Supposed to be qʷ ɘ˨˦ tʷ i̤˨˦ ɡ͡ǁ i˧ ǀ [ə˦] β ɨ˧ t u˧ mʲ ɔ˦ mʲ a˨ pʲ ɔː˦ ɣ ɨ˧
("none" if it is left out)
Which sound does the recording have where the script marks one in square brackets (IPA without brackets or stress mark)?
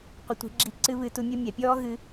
ɨ˦